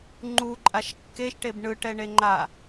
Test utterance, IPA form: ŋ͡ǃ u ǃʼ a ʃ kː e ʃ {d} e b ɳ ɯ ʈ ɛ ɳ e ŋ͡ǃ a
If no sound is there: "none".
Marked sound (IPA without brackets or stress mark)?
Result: ʈ